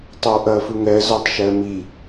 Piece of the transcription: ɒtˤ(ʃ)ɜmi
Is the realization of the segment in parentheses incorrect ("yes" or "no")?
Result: no